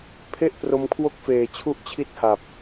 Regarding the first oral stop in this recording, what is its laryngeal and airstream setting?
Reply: aspirated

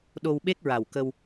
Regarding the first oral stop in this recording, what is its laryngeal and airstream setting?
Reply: implosive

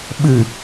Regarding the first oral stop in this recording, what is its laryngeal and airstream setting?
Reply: implosive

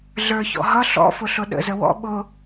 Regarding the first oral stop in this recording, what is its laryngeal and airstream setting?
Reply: implosive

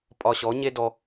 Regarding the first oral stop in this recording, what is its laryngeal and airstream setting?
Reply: ejective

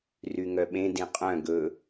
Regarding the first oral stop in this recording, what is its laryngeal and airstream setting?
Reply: implosive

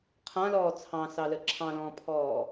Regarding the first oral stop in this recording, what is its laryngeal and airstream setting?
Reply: aspirated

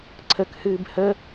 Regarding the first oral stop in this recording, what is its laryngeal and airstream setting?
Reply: click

